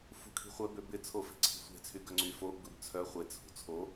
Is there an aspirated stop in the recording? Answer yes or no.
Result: yes